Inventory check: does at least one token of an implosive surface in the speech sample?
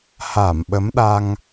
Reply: yes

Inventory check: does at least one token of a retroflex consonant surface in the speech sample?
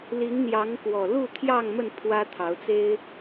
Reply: no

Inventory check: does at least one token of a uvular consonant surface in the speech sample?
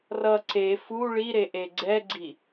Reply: no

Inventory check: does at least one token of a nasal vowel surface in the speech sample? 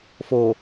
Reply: no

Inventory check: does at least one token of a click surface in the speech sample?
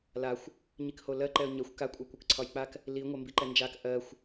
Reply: yes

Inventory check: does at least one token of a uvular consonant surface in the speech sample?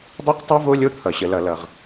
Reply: yes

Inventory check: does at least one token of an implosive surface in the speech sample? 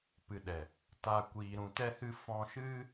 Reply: yes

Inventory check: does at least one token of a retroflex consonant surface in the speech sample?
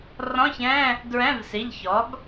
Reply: no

